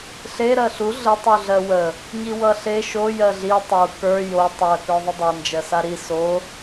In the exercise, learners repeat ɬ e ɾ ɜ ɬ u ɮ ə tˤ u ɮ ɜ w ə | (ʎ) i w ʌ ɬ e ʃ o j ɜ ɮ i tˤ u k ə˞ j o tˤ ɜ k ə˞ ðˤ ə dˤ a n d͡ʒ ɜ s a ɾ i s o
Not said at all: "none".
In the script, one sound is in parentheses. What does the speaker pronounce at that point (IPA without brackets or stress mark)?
ɲ